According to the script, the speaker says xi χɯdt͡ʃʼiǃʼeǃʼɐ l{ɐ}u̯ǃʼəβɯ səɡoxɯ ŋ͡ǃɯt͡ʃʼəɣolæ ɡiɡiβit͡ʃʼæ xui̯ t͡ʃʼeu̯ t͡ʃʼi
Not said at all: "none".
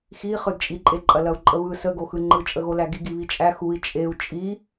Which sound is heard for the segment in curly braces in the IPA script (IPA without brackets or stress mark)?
ɐ